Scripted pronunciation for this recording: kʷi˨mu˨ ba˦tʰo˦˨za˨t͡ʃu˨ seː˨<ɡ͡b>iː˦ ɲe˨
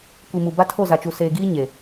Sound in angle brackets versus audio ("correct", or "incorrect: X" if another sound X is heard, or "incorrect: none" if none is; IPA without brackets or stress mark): incorrect: ɡ